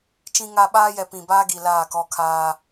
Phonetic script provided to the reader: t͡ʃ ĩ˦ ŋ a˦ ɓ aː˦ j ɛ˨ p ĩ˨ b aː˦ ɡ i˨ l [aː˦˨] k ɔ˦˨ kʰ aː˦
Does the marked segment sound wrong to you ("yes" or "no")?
no